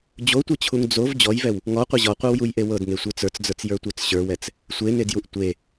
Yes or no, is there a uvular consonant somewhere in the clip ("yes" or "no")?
yes